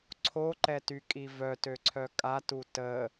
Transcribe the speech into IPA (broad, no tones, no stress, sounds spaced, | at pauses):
ǀʰ o ǃ ɛ t y kʼ i v œ t ø ǀʰ œ kʼ a t u t ə